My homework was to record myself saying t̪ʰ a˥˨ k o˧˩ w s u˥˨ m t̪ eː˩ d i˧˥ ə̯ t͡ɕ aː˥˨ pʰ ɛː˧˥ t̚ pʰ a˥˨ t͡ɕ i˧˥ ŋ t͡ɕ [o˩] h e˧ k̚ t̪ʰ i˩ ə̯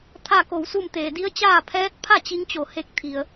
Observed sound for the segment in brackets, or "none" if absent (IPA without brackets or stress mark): o˩